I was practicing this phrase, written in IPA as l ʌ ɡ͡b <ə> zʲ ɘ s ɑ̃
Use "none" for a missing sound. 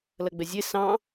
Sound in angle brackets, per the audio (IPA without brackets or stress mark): ə